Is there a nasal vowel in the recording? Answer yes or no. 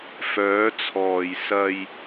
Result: no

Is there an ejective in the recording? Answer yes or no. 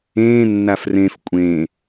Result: yes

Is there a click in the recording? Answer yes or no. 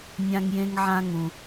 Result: no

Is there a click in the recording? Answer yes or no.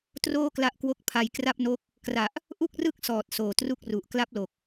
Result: no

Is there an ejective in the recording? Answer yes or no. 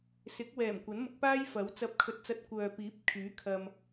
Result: no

